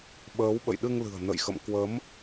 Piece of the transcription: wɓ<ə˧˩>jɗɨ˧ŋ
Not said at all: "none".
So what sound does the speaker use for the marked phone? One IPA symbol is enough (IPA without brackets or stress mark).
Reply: ə̰˧˨